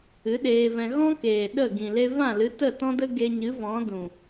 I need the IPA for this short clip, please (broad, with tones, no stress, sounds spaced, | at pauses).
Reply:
ɨ˨˦ ɗ eː˧ v ɛ̃˧ ɣ ɔ̃˦ k eː˨ ɗ ə˦˨ ɡ ĩ˨ l e˧ v ã˦˨ l ɨ˨˦ t ə˦˨ t ɔ̃˦ d ə˦ ɡ e˧ ɲ ɨ˨˦ v ɔ̃˨˦ d ũ˨